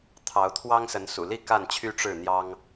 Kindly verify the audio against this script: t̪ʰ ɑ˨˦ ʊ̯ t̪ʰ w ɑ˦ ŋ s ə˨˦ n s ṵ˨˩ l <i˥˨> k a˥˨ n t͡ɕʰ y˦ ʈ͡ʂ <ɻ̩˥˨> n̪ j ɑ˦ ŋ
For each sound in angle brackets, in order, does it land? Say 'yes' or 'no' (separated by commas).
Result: yes, yes